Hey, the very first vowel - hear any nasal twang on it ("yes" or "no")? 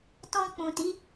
yes